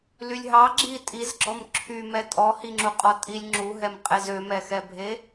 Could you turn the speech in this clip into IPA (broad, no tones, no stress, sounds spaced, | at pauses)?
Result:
l y lʲ ɦ ɑ ɡ͡ǁ i tʼ i z ɡ͡ǁ ɔ m ǁʰ y m ɛ tʼ ɔ h i ŋ͡ǁ u qʼ ɔ tʼ i lʲ ŋ͡ǁ u ɦ ɛ m qʼ e z ø m ɛ x ɛ bʱ e